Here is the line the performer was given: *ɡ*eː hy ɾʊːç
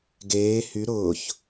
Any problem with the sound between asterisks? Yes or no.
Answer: no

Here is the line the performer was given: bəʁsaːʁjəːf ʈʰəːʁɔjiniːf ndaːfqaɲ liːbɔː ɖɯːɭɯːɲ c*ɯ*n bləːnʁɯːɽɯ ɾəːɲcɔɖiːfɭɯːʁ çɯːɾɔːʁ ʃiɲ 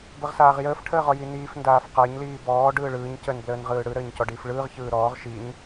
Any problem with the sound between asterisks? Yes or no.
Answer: yes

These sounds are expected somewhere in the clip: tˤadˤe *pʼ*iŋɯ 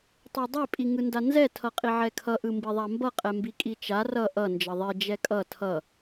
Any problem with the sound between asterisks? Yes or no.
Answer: no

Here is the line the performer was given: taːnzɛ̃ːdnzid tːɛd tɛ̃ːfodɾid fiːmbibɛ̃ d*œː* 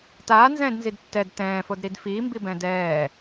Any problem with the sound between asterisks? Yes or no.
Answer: yes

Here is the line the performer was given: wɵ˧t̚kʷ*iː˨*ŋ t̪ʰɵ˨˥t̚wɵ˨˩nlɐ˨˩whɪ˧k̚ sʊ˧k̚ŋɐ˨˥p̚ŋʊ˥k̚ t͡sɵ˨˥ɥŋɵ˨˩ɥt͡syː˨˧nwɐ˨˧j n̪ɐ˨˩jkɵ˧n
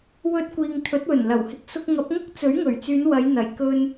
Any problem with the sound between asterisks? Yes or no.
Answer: no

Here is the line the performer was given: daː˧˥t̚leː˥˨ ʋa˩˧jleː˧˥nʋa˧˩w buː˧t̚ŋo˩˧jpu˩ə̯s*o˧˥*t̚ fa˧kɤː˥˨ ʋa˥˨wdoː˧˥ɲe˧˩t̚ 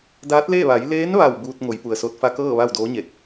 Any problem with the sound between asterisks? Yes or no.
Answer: yes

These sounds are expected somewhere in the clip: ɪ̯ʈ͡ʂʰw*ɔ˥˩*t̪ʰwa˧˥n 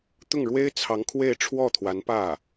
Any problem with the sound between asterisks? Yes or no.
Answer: no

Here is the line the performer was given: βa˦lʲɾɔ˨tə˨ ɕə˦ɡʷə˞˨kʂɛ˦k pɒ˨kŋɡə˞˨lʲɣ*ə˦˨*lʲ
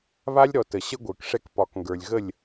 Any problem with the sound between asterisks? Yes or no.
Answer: no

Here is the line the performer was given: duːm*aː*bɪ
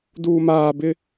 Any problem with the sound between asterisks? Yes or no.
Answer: no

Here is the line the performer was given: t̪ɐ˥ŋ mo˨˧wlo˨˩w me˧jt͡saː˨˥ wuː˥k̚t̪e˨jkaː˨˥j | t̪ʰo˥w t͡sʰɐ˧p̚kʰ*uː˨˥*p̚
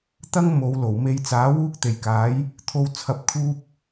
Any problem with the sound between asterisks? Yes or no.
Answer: yes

